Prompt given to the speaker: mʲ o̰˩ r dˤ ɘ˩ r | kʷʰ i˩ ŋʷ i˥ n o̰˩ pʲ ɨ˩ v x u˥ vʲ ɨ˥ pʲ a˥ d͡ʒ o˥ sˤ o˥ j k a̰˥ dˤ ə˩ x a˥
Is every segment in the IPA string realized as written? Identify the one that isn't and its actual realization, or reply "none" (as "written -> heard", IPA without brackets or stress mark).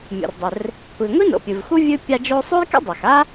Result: ə˩ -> a˩